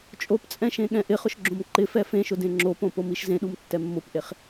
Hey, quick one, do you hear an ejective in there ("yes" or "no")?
yes